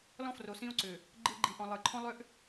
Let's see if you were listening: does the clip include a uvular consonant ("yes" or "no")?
no